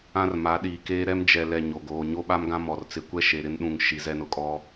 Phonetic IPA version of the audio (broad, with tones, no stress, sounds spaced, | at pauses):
ã˦ r m a˨˦ ɗ iː˨ k eː˦ ɾ ɛ˦ m d͡ʒ ɛ˨ l ɛ˨ ɲ o˨ ɡ oː˨ ɲ o˦ ɓ a˦ m ɡ ã˦ m ɔ˨ r t͡s ɪ˨ kʷ ɛ˦ ʃ e˨ ɾ ɪ˦ n ɗ ũ˨ ŋ ʃ i˨ z ɛ˦ n ʊ˨ kʼ ɔ˦